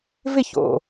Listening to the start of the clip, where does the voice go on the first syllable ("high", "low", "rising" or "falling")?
falling